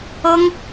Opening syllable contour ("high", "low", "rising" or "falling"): high